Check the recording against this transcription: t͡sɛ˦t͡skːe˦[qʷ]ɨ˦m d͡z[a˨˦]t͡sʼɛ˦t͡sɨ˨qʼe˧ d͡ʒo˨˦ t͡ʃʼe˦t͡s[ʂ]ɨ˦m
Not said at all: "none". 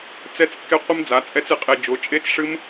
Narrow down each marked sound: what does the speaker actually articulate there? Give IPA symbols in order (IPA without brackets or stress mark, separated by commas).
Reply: qʷ, a˨˦, ʂ